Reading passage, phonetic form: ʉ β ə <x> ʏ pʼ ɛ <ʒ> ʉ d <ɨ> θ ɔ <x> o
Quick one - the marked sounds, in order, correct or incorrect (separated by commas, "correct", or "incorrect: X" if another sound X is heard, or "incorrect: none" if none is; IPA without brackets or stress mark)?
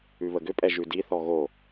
incorrect: ɡ, correct, incorrect: i, incorrect: ɣ